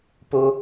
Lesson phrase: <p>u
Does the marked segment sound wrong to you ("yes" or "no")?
no